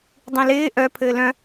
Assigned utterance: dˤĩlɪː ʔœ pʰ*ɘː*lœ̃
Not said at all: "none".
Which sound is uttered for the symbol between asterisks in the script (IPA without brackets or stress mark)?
ɘː